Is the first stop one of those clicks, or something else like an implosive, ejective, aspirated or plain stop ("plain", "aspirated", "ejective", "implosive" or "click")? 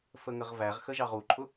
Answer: click